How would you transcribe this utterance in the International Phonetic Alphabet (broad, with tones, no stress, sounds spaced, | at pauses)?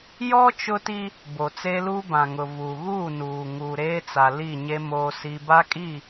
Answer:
j ɔ˦ t͡ʃ ʊ˦ t i˦ | b o˨ t͡s eː˦ l uː˦ b ã˨ ŋ ʊ˨ v uː˨ ɣ uː˦˨ n uː˨ ŋ uː˨ ɾ eː˦ t͡s a˨ l i˦˨ ɲ e˦ m oː˦ s i˦ b a˦ kʼ i˦˨